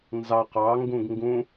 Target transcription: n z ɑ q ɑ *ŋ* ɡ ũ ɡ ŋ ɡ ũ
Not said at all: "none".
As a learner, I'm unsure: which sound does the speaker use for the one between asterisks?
ŋ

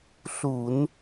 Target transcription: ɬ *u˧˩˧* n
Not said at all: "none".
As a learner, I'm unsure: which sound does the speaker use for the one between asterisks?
u˧˩˧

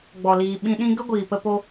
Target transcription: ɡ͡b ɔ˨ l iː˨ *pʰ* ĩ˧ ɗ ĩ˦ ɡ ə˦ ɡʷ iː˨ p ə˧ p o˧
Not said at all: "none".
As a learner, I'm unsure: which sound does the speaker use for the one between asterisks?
ɓ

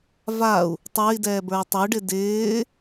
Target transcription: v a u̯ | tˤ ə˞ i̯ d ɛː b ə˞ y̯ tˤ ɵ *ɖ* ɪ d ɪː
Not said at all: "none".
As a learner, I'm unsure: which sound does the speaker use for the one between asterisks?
ɖ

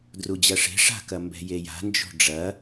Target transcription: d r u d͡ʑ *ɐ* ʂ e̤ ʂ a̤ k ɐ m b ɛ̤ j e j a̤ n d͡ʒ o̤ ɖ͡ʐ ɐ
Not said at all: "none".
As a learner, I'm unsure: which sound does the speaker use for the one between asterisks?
ɐ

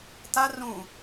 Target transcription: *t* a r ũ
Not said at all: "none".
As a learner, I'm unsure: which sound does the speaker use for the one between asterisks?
t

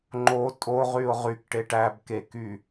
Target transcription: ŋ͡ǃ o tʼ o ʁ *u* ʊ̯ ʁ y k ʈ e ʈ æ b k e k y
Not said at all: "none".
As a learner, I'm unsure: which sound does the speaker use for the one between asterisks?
y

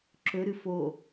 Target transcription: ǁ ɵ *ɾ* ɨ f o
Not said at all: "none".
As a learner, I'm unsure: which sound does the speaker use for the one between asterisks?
ɾ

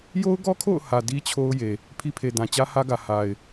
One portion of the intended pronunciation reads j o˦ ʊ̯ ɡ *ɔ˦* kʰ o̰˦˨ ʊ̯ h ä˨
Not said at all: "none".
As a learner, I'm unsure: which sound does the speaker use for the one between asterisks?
ɔ˦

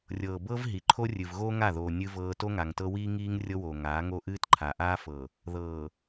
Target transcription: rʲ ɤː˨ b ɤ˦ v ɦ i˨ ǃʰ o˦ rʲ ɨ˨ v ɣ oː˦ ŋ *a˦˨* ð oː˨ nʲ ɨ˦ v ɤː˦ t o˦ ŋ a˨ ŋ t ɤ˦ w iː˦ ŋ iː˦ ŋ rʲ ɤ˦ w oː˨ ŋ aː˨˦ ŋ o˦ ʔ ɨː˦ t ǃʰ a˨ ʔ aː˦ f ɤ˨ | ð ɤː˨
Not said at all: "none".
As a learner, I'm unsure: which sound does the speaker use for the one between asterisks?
a˦˨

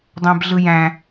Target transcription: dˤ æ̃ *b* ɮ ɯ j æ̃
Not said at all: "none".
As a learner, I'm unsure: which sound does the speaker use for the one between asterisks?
b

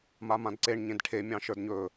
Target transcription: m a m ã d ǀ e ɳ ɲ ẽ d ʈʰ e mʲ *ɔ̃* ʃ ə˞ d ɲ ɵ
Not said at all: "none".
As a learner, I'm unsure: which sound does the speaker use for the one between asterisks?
ɑ̃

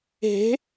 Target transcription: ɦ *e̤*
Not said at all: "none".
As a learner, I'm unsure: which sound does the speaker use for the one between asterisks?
e̤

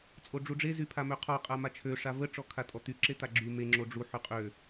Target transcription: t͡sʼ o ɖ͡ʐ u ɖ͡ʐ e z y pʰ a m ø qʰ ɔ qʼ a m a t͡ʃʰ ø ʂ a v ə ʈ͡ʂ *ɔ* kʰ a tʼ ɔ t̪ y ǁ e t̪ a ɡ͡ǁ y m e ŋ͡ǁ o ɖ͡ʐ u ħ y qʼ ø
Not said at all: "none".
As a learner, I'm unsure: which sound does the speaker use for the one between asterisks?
ɔ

